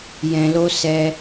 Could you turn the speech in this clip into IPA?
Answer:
jɛ̃˧lo˦ sɛ˦

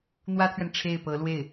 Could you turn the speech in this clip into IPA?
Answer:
n̪wä˥t̪ʰɥɛ˨n ʈ͡ʂʰe˥˩ɪ̯pɤ˧˥lwe˥˩ɪ̯

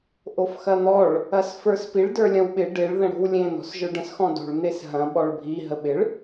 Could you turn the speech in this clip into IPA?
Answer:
ʔofxɐn̪ɔɭ | ɐsfə˞spiɭ də˞lʲɐ̃wɓɪ ɖeɭ ðə̃ɽo̤wlʲẽ n̪ɔ̤sʒə˞ɖə̃s xɔ̃do̤ɭ n̪esɦɐ̃ ɓɔɭbʱi ɦəɓɪɭ

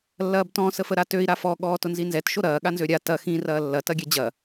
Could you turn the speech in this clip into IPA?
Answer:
lːɐːbtɔ̃ səfəɾatøi̯ ɾafɔ ɠɔːtʊnzinzɛt ʃoɾɐː ɠanzøɾʲa tɐ xĩ rɐːlːɐ tɐɡʲɛd͡ʑɐ

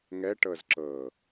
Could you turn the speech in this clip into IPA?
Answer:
ŋɛ ʈɤzǁɤ

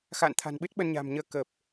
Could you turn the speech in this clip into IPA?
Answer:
xa̰˧˨nt̪ʰa̤˨˩nɓɨ˦˥t̚ ɓə˧nɲa̤˨˩m ɲəː˧kəː˨˩p̚

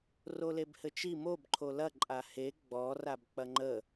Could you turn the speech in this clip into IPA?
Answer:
rolebhɘt͡ʃi mob ǃʰolɐ ǃʼahe ɡ͡bɔ rabk͡pɐŋ͡ǃə

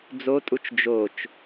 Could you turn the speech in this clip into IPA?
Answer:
d͡zotʼut͡ʃ d͡ʒot͡ʃ

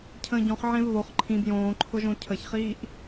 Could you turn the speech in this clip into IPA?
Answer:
cʰə̃ːɟɔ̃χ ʕẽvβoχ ǃʰĩb jõːǃʰʊʒõ cʰəçχiːʔ

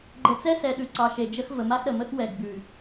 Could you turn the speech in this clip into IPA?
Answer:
ɡ͡ǃə˨t͡sɛ˦sɛ˨ɗʉ˨ ǀɑ˨ʃe˨d͡ʒə˦x və˨ma˦xɾə˨mə˦x wɛ˨ɡ bʉ˨

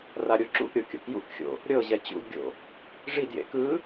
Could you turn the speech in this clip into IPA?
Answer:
raɾʲoǁṵʔɾʲo kʲo̰kjṵkxʲo̰ | ɾʲɤʑɛ t͡ɕṵdɡʲo̰ | ʐidjḛ kɯ

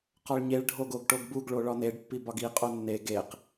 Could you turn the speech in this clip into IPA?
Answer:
qɒɭɲeɭ ɖʱoɡoɡʈoɡbuɡ ɭoɭɒneɖ pːibɒɡi qʼonːe ɡeq

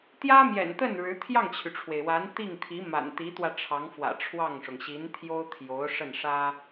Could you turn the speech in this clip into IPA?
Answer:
t̪jä˥mjɛ̰˨˩nt̪ə˥˩n ɻɻ̩˧˥ t̪ʰjɑ˥˩ŋt͡ɕʰy˩ʈ͡ʂʰwe˩ɪ̯ wa˧˥n t̪i˥˩ŋt̪ʰi˧˥ ma̰˨˩nt̪i˧˥t̪wä˧ʈ͡ʂʰɑ˧˥ŋ fwä̰˨˩ ʈ͡ʂʰwɑ˥˩ŋʂʊ˩ŋ ɕi˧˥nt̪ʰjo˥ʊ̯t̪ʰjo˧˥ʊ̯ ʂə˥˩nʂä˥

